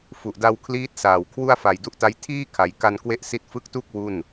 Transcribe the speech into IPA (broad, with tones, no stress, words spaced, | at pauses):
fu˨˩ʔda˧wkʰliː˦˥t̚saː˨˩w kʰwu˥˩a̯fa˨˩jdu˥˩ʔta˦˥j tʰiː˥˩ kʰa˩˦jka˧nkwe˥˩ʔsi˦˥t̚ fɯ˦˥k̚tu˥˩k̚ wu˥˩n